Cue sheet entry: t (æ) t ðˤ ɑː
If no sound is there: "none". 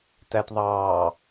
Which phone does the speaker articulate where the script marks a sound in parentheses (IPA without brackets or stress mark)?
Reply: æ